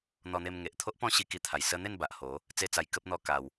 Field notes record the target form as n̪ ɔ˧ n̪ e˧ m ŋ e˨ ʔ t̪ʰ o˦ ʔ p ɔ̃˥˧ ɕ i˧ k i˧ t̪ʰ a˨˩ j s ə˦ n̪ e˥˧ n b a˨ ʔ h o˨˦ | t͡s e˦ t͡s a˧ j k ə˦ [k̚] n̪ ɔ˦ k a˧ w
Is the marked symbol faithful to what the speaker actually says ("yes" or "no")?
no